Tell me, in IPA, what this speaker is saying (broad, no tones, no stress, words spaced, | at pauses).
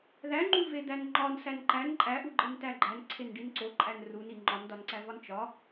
ðæŋ͡ǃuve d̪ænŋ͡ǃɒn sænǃæn ǃʼæʔu ɡ͡ǃentæɡ͡ǃæn ǀʰenɖinǀoǃʼæn runi ŋ͡ǃɒndɒnǀævɒn t͡ʃɒ